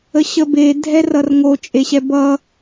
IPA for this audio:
ə ɕ ə b e dʱ ɛ r ʌ r ŋ o t͡ʃʼ e ɕ ɛ b ʌ

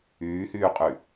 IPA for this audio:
yː h yː qʼ y

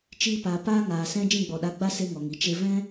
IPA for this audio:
t͡ʃ iː˧ p aː˨ p aː˦ ŋ aː˨ s ɛ̃˦ d͡ʒ ĩ˦˨ ɡ͡b ɔ˨ ɗ a˨˦ ɡ͡b a˦ s e˦ ŋ ɔ˨ ŋ i˨ t͡ʃ e˧ v ɛ̃˦

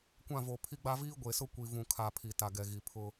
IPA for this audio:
kʷ ã˦˨ v oː˨ pʰ i˦ ɡ͡b a˦ v iː˦ ɡʷ eː˨ s ʊ˦ kʷ i˨ v ũ˨ kʰ a˨ pʰ i˨ t a˨ ɡ ɛ˨ ɣ i˨ pʰ ʊ˦

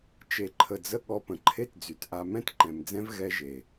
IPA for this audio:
t͡ʃ e˨ ǃʰ ə˨ d͡z ə˧ ɠ ɔ˧ p ə̃˨ ǃʰ e˦ t d͡z y˨ t ʔ a˧ m ɛ̃˦ t ǃ ɛ̃˨ m d͡z ɛ̃˦ v ɣ ɛ˦ ʒ e˨

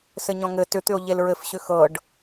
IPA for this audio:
s ɘ ɲ ɔ̃ ŋ ɘ t ʏ t̪ ʏ o̯ ʎ e l ɹ ɘ f ɕ ʏ x ɤ ɖ

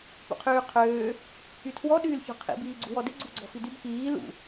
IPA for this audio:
p ṵ qʰ yː qʰ øː | y tʰ w ɔ ɗ yː l ç ɔ̤ qʰ ḭ b iː ɡ͡ǀ ṳ w ɔ d ɪ ɡ͡ǀ ṳ ɡ͡ǀ ɔ̤ f i d y b k iː l ṵ

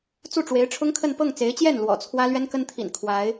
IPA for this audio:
t͡s u˥˩ ʈ͡ʂ w e˧˥ ɪ̯ ʈ͡ʂʰ ʊ˥ ŋ kʰ ə˥˧ n p ɤ˥˩ ŋ t͡s e˧˥ ɪ̯ t͡ɕ j ɛ˥˩ n l w ɔ̰˨˩ t͡sʰ w ä˥ l ɥ ɛ˥ n k ə˥ n t̪ʰ ḭ˨˩ n kʰ w a˧˥ ɪ̯

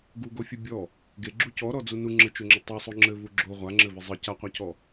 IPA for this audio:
ɡ u ɡ o fʲ ɘ bʲ ɔ | ɡ e ɡ͡ǁ u c ɔ ɾ ɔ d͡z u n u ŋ͡ǁ ɘ t͡ʃ o ŋ͡ǁ ɘ tˤ u sˤ o ŋ͡ǁ ɘ v u ɡ͡ǁ o ʁʷ a ŋ͡ǁ ɘ v ɘ zˤ ɘ c a qʷ a c ɔ

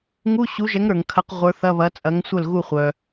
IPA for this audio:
ŋ u˧˥˧ ɕ u˨˥ ʒ ɛ˨˥ ŋ ɾ ə˞˩ ŋ kʰ ɐ˨˥ q ʁʷ ə˞˨˥ θ ɐ˧˥˧ β ɐ˨˥ t͡sʼ ɐ˨˥ ŋ sʷ œ˥˩ l ɣ u˥˩ χʷ œ˩

